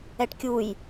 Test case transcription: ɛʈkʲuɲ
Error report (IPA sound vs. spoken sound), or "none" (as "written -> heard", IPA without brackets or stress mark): ɲ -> j